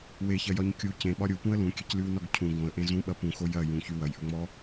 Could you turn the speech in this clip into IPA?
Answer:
w e ç ɐ j ɒ ɲ kʲ u c ẽ ɓ ɒ ɾʲ u p ũ ə̯ l ũ kʲ e c l y w n ɔ ɡ cʰ ũ ɡ õ ə̯ ʔ ẽ z ũ ɓ ɐ p ũ x o j ɐ j ũ ç y w ɐ j ʔ ɵ ŋ͡m ɔ

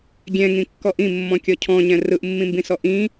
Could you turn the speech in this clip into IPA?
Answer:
ɡʲ ɛ̃ ŋ ĩ kː ɔ ʔ ĩ mː ɔ̃ kʲ ɔ cʰ ɔ̃ ɲ ɛ̃ r ɯ ʔ mː ĩ m b ĩ s ɔ ʔ ĩ

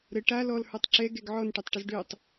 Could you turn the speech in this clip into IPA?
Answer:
ɾ ə ʈ a l ɔ l h ə˞ tˤ ǁ ɛ ɡ ɛ ɡ ʕ ɔ n ʈ ø tˤ ʈ ə z ɖ ø tˤ

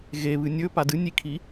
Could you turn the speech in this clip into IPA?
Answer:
ɣ e β ɨ nʲ ɵ p a d ɨ nʲ i kʰ i

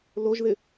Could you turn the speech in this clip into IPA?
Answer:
l o ʒ ð ɪ

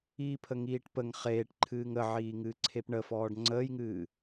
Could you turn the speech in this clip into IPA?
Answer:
iː pʰ ə ŋ iː ʈ p ə ŋ χ eː ʈ ǃʰ ɨː ŋ ə ʕ iː ŋ ɨː ǀʰ e p ɳ ə f ɔː ɖ ŋ͡ǀ əː j ŋ ɨː

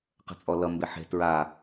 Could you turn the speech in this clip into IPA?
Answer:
q ə̤ t͡sʼ ɔ l ʌ m b e ħ e̤ t ɹ a

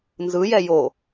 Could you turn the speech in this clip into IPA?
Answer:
n z ɯ j ɛ j o

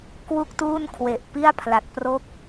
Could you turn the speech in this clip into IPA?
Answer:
k w u˥˩ k̚ t uː˥˩ n kʰ w e˨˩ ʔ p i˥˩ a̯ pʰ l a˨˩ t̚ p r o˥˩ k̚

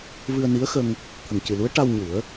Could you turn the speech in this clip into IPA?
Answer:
v ɨ˧ ə̯ n i˧˥ ə̯ x ə˧ ŋ | t̪ʰ ə˨˩ ŋ c ɨ˨˩ l u˧˥ ə̯ ʈ a˧ w ɲ u˨˩˦ ə̯

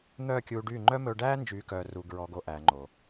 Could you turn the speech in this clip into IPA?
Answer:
n̪ œː˦˨ kʲ uː˧ ɖ yː˦˨ ŋ͡ǃ œ˦ m ɵː˧ ɖ æː˦ n d͡ʒ yː˨˦ k œː˨ r uː˨ ɡ ɹ ɔ˨ ɡ o˨ ʔ æː˨ ŋ͡ǃ o˨

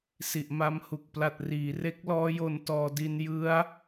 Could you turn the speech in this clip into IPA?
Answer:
s i˨˩ ʔ m a˧ m h u˨˩ k̚ p l a˨˩ t̚ r iː˩˦ r e˦˥ k̚ l ɔː˦˥ j o˧ n t ɔː˧ d i˧ n j ɯ˦˥ a̯

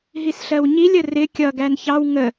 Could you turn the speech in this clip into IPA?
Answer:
ɦ i s ɬ ɜ w ɲ i lʲ ə r ɪ kʲ ʌ ɡ æ n ç ɑ w ŋ ə

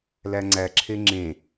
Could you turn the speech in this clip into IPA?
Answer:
l æ ŋ͡ǀ æ ǁʰ e ŋ͡ǁ ẽ

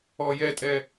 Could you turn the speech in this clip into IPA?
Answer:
ɔ j ɛ tʼ ɛ

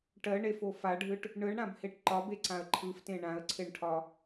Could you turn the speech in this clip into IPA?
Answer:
ʈ ɜ ɳ e f o f a ɖʱ ɯ ʈ | ɳ ɯ ɳ ɽ ã b h e ʈ ǃ ɒ b e ǀ ã ə̯ ǃʰ ɯ f t ẽ ɳ ã ə̯ ǀʰ e ɳ ʈʰ ɒ

